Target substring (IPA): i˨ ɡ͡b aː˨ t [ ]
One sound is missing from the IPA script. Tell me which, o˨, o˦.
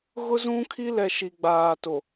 o˨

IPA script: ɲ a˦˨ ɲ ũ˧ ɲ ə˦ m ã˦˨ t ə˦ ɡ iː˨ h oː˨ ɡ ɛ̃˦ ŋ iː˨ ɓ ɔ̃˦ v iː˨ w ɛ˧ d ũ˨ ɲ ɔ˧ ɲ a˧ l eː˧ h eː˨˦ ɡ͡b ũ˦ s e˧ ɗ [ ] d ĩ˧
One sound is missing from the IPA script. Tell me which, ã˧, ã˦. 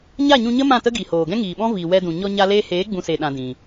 ã˧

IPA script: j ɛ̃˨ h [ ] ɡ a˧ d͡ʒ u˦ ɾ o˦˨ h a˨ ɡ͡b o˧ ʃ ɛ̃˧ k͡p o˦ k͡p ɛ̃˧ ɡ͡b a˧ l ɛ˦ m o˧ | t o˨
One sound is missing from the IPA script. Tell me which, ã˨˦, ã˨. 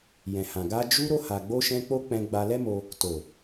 ã˨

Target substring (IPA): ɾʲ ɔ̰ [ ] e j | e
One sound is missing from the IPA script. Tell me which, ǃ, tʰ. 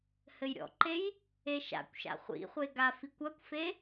ǃ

